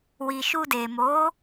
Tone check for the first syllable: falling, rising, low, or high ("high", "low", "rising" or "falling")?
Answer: low